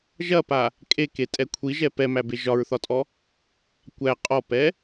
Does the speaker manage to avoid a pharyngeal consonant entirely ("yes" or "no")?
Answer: yes